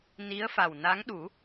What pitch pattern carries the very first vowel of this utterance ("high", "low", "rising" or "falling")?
rising